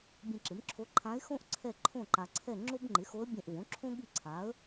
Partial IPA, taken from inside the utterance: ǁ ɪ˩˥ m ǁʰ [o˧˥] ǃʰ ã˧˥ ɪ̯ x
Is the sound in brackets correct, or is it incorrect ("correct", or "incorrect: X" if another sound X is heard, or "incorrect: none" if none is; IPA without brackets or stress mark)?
correct